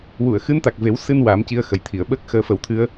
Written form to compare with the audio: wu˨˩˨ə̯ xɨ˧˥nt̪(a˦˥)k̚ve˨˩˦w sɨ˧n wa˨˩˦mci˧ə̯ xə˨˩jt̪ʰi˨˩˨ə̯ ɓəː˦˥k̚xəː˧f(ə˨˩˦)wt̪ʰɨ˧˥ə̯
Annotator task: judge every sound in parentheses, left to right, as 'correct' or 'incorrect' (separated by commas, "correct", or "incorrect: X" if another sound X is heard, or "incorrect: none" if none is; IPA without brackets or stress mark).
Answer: incorrect: a˨˩, correct